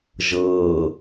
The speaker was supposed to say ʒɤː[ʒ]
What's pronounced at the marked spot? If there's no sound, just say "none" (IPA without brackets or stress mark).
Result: none